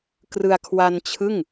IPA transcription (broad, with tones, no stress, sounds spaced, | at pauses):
k r ɯ˧ a̯ kʰ w a˧ n t͡ɕʰ ɯ˥˩ ŋ